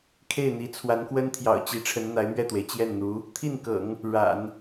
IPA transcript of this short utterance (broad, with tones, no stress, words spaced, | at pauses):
kʰe˥˩ɪ̯n̪i˧˥t͡sʰwa˧˥nkwə˥n t̪ʰjɑ̰˨˩ʊ̯t͡ɕi˧˥ʈ͡ʂʰə˧˥n n̪a˧˥ɪ̯mɥɛ˥˩t̪we˩ɪ̯ t͡ɕjɛ˥˩nn̪u˧˥ | t̪ʰi˥˩nkɤ̰˨˩˦ŋ | ɻa̰˨˩˦n